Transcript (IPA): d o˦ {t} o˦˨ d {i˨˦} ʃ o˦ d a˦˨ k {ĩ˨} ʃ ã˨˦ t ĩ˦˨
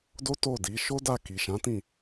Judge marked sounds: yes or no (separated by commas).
yes, yes, no